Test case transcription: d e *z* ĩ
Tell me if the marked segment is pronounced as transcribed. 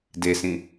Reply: no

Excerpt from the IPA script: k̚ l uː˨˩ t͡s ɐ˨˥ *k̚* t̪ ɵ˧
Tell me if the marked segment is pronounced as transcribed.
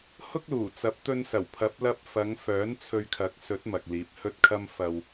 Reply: no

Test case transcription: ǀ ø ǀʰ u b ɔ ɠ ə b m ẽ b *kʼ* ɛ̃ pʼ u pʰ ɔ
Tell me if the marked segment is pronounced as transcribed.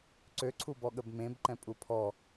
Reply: no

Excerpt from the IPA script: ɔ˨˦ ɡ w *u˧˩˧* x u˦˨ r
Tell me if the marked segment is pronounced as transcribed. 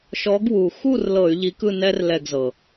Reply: no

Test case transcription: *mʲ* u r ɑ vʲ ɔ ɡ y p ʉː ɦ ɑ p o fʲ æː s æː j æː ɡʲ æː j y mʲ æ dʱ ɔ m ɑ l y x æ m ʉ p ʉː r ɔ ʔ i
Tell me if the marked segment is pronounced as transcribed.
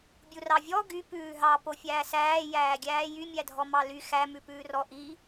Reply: no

